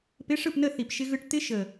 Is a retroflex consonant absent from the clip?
no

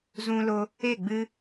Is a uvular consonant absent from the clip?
yes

